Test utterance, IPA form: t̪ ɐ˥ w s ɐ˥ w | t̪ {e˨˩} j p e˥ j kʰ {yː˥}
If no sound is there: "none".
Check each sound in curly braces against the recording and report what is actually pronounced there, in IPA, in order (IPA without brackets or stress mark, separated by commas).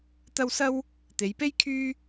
e˨˧, yː˥